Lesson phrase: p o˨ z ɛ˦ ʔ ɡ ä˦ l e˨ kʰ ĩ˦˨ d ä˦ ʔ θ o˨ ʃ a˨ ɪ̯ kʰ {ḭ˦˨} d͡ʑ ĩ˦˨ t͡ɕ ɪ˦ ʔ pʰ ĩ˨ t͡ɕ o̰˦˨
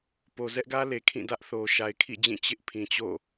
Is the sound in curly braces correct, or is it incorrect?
correct